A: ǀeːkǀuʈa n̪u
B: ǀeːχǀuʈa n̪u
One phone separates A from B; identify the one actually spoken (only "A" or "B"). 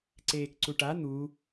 A